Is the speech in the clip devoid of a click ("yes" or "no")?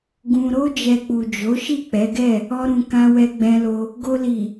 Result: yes